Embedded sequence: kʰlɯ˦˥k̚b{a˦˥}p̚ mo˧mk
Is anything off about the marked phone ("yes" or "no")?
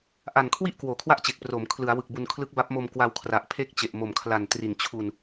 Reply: no